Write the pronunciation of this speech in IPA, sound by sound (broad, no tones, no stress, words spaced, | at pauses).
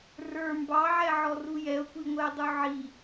rə˞ mbɑʕɛʕɔru jɛo̯kʷiŋʷɛe̯dˤu ʕi